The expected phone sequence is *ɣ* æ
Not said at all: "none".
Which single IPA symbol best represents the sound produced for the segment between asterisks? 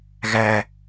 ɣ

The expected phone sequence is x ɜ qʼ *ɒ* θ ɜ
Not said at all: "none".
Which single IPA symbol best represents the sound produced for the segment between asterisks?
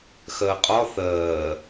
ɒ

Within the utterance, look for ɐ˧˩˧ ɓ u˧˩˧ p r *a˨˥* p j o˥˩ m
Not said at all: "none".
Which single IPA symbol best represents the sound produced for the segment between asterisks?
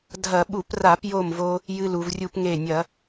a˧˩˧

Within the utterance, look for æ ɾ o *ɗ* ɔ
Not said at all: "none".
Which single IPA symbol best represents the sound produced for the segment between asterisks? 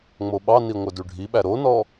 n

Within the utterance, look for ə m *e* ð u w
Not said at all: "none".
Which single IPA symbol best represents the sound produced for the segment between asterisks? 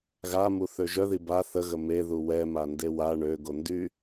e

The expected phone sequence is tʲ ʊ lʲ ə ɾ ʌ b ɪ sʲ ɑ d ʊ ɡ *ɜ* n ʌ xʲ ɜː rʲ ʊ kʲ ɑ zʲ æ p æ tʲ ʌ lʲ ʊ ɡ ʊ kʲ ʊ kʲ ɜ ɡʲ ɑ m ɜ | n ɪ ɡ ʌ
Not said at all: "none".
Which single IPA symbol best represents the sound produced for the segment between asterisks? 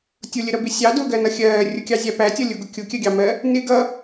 ɜ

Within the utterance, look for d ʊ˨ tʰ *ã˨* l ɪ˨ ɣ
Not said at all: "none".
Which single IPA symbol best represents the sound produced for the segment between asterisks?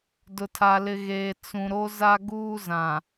a˨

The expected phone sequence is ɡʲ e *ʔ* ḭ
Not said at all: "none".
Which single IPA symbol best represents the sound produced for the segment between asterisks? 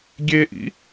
ʔ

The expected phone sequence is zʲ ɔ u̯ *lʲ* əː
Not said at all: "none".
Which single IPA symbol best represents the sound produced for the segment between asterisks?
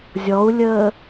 lʲ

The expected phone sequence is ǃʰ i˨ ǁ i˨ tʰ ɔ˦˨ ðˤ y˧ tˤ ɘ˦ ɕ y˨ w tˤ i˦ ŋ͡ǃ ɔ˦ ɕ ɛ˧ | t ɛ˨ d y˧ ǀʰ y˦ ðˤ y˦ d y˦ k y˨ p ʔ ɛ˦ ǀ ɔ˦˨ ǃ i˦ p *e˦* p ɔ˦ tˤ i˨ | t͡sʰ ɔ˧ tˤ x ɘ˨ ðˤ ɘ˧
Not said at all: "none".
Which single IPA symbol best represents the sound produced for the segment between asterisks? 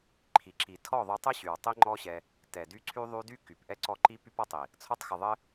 y˦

